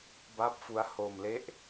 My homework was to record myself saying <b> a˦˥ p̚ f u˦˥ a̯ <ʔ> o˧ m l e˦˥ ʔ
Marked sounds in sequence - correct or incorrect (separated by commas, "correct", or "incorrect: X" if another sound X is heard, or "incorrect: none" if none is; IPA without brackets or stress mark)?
correct, incorrect: h